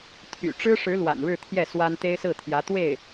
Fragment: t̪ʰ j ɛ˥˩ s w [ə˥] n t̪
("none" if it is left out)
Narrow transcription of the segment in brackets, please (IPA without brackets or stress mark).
a˥